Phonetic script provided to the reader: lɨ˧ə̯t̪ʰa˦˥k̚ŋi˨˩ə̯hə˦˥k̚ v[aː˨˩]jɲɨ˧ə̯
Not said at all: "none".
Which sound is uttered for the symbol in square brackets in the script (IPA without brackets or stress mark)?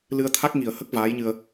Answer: aː˧˥